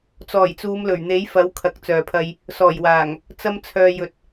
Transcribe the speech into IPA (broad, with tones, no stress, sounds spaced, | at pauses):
t͡s ɔː˨˩ j t͡s uː˨˧ m l ɵ˨˩ ɥ n̪ e˨˥ j f ɐ˨˥ w kʰ ɐ˨ k̚ t͡s œː˨ pʰ ɐ˧ j | s ɔː˨˩ j w aː˨˩ ŋ | t͡s ɐ˧ m t͡sʰ œː˨ j ɵ˨ t̚